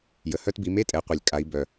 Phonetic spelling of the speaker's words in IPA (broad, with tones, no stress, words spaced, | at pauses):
jə˩hœ˧tbi˩˧me˥˨ tʼɛ˩˧qʷɛ˩lʲ kʼa˩˧i̯bœ˩